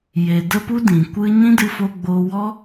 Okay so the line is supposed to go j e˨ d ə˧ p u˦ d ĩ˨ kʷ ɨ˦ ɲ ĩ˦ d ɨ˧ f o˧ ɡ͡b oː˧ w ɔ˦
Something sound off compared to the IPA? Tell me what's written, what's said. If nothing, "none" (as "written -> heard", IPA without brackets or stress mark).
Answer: none